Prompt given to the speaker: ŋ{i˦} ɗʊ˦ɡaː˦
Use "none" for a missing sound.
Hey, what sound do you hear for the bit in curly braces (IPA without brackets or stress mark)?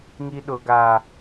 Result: i˦